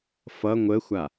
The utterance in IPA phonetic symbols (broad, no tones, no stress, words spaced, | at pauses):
fʌ ŋʷəxʷa